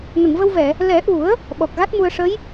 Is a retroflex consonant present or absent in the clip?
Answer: present